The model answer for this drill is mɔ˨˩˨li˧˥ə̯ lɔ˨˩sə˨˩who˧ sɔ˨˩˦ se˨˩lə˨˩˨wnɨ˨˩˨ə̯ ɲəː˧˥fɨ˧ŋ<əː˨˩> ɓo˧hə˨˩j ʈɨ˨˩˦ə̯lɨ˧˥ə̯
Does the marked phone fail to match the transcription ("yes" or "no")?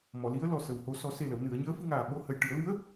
yes